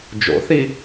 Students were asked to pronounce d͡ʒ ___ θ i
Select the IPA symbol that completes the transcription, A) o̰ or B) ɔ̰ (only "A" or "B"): A